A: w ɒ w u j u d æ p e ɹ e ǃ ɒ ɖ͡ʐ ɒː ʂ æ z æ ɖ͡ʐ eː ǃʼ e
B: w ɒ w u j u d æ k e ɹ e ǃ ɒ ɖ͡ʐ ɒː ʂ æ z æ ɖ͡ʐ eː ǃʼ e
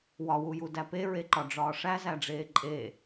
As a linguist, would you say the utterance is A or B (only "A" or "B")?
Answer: A